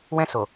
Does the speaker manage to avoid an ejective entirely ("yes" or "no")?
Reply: yes